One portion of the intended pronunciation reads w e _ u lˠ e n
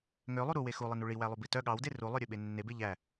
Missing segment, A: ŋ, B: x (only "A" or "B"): B